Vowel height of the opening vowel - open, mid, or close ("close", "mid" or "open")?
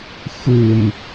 close